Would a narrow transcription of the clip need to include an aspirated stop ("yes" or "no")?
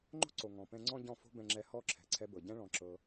yes